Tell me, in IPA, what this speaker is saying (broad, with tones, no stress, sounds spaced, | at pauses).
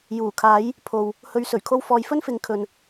j uː˨˩ kʰ aː˨˥ j | pʰ o˨ w | h ɵ˨ ɥ s ɵ˨˩ ɥ kʰ o˧ w f ɔː˨˧ j f ɵ˥ n f ɪ˨˥ ŋ kʰ ɵ˨ n